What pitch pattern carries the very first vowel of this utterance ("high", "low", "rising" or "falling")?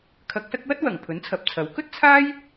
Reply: rising